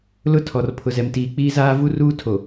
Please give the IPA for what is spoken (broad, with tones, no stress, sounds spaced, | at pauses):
l ʊ˦ tʰ ɔ˨ r pʰ ʊ˨ z ɛ˨ m t iː˨ k͡p iː˦ z aː˦ v u˦ r uː˦ tʰ o˨